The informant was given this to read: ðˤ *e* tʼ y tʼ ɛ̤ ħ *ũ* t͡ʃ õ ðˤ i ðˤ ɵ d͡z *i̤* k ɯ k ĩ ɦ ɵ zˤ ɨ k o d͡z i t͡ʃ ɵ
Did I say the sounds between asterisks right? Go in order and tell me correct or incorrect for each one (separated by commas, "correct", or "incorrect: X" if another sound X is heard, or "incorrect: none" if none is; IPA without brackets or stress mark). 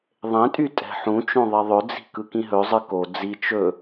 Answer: incorrect: ẽ, correct, correct